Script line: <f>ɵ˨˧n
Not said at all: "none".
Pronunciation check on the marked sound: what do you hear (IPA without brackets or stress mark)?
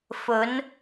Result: f